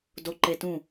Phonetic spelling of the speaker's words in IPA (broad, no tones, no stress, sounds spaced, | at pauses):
d o ǃ e t ũ